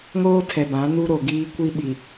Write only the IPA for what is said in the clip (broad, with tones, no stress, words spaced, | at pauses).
ŋoː˦tʰɛ˨ bã˨˦nu˦ ɾo˨ɡiː˦ kʷi˦ɓi˨